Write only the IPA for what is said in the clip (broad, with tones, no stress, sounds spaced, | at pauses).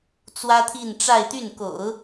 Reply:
t͡s w ä˥ t̪ʰ i˥˧ n ʈ͡ʂ a˥˧ ɪ̯ t̪ y˥˩ n k o̰˨˩˦ ʊ̯